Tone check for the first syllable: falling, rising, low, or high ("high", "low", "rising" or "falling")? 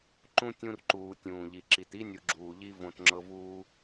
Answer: high